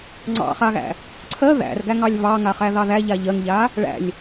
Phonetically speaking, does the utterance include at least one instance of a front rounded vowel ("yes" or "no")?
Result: no